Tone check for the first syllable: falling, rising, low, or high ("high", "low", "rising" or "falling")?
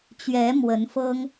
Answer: rising